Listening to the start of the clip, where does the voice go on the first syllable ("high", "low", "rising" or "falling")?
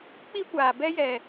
high